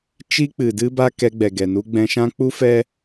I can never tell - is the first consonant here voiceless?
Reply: yes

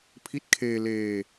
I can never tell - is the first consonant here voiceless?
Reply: yes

